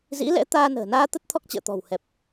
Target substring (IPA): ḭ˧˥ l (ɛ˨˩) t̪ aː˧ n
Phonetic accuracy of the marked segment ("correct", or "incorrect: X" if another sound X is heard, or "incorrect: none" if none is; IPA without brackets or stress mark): incorrect: ɛ̰˧˥